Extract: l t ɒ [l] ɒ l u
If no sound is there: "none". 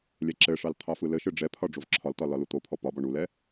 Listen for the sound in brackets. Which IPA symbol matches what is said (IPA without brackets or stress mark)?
l